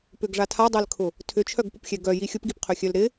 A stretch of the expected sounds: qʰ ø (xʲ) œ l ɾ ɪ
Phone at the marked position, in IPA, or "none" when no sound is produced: xʲ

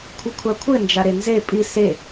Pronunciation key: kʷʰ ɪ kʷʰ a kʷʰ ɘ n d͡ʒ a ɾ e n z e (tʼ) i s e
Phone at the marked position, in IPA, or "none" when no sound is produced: pʼ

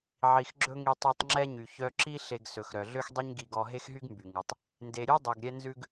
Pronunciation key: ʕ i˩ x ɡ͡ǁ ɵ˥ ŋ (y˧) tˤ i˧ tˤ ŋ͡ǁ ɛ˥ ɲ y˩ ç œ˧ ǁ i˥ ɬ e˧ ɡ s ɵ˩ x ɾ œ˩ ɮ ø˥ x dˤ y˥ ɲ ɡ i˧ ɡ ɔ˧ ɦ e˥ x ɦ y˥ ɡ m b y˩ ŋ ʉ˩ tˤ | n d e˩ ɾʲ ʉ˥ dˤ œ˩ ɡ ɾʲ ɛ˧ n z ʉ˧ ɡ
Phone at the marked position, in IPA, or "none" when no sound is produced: i˧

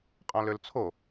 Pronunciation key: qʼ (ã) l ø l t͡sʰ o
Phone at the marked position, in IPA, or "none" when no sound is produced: ã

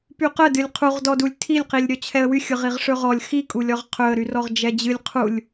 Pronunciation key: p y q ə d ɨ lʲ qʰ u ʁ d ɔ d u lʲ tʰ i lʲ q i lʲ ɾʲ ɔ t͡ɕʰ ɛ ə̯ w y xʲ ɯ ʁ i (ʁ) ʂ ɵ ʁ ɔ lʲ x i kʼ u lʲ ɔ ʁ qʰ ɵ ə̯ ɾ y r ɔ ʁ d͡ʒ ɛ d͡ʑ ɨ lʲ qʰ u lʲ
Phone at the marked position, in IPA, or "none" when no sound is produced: ʁ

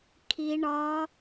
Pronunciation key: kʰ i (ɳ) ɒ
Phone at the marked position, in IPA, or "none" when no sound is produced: ɳ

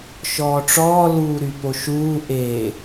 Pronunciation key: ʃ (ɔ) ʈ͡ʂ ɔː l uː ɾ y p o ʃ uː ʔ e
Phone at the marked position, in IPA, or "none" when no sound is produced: ɔː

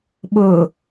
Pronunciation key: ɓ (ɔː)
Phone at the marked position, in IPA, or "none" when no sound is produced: ʊː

